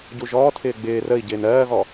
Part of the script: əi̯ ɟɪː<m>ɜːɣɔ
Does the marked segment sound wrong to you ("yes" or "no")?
yes